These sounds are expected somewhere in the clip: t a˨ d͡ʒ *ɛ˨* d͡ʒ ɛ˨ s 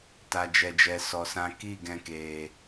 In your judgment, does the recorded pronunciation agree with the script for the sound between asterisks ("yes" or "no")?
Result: yes